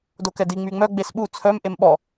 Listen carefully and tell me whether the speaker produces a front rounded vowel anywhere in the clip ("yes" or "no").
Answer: yes